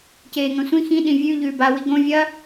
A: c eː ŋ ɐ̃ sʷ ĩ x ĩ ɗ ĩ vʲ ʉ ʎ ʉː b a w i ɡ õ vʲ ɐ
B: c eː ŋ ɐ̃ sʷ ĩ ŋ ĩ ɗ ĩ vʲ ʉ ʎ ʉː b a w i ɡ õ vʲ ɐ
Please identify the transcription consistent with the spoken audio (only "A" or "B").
A